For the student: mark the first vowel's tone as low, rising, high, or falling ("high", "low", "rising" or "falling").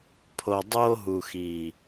low